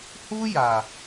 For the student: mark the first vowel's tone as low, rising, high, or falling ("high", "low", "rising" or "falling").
high